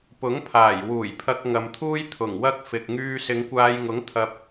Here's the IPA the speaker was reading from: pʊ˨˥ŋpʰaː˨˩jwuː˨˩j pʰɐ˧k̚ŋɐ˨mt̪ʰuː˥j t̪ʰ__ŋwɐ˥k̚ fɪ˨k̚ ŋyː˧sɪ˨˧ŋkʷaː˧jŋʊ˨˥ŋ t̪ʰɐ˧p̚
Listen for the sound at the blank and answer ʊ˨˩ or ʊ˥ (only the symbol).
ʊ˨˩